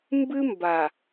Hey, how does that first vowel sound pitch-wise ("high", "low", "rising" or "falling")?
high